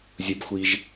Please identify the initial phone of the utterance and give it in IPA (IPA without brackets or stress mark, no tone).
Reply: zʲ